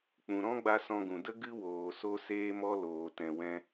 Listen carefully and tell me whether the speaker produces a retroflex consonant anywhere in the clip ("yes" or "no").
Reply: no